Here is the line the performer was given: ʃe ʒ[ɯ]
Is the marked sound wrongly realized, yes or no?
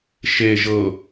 yes